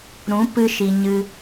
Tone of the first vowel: rising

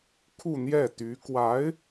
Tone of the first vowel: falling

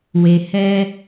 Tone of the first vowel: low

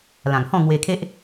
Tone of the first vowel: low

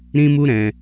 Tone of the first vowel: high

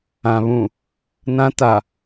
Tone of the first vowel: low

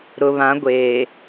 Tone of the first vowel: low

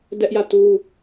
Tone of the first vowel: high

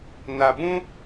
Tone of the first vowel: low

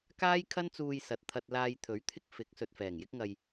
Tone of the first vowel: high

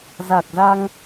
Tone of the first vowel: low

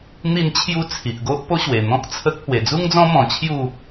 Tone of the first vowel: falling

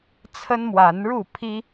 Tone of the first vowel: high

